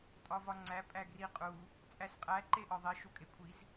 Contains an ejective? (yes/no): yes